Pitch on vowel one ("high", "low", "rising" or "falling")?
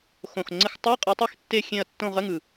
low